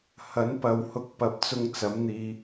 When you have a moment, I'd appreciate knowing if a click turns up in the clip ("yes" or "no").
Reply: no